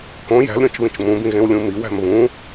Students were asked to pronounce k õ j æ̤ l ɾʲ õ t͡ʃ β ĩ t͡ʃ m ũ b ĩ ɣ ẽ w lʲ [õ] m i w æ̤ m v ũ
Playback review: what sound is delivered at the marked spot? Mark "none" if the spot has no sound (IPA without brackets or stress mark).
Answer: ũ